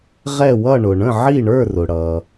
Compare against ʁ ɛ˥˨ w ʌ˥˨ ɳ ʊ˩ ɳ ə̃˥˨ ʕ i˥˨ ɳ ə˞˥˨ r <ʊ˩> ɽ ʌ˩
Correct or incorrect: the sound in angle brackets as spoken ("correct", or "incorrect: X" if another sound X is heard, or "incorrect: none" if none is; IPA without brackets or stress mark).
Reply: correct